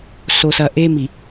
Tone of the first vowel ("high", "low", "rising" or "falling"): low